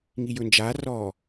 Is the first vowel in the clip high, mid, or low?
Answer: high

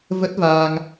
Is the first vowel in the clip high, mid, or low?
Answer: mid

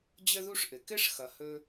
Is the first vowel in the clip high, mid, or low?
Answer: mid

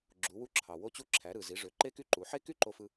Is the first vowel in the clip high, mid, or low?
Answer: high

